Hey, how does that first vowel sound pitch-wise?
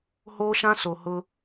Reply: high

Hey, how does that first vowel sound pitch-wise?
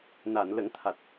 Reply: low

